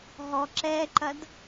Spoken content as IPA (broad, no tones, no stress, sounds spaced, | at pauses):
ɦ ɔ ǁ ɛ ǃ ɐ d